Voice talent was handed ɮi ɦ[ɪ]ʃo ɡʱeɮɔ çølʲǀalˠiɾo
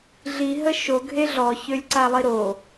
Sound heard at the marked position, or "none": ə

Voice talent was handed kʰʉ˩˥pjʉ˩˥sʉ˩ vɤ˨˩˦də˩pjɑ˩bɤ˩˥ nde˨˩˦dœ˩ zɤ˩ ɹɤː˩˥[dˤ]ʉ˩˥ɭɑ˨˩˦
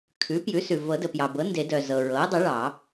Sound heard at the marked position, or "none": dˤ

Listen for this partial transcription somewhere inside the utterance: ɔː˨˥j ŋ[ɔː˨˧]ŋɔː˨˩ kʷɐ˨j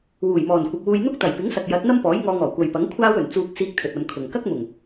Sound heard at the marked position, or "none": ɔː˧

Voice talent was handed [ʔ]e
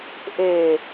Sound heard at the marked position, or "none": ʔ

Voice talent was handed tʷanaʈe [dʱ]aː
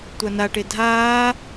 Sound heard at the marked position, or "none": dʱ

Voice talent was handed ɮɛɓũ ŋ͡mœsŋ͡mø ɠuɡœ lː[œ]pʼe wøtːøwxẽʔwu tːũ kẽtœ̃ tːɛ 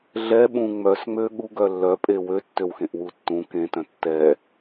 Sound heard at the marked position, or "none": œ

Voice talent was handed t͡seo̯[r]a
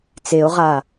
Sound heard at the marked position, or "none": ʁ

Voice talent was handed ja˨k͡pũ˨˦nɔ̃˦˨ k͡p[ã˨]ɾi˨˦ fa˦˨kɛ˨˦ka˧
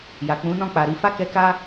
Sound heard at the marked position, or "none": a˨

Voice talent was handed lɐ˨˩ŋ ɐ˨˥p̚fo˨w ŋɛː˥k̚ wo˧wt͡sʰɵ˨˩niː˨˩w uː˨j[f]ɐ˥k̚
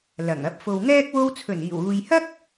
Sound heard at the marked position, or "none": h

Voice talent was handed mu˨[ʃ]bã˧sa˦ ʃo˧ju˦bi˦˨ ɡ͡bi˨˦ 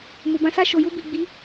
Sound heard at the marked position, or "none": none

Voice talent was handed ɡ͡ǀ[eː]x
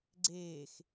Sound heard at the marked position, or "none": eː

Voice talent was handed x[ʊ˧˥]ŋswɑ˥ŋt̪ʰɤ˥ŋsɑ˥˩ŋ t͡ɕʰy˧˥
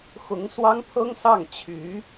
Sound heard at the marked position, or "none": ʊ˧˥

